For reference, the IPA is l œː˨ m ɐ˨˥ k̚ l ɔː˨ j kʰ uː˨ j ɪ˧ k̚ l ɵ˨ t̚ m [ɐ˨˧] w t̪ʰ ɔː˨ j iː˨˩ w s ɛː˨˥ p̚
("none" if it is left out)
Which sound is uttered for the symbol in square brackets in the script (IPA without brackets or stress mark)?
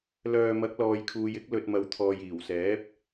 ɐ˨˧